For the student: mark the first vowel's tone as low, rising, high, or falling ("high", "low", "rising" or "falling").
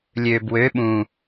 low